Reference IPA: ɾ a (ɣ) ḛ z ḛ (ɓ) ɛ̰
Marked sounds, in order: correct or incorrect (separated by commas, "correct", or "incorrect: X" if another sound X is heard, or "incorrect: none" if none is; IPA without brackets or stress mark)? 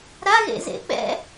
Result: correct, correct